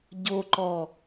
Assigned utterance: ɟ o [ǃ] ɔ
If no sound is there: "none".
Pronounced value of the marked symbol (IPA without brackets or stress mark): ǃ